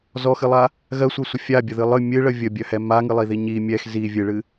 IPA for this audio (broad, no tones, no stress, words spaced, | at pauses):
zɔxɨlˠa | ɣɜsʷɜsʷə fʲabʲəðɨ lˠɨ mʲɨɭə vʲəbʲœhɛ maŋɨlˠiði ɲi mʲɛx zi vʲɨɭɨ